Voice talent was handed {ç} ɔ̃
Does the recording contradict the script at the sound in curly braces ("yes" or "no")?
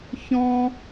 no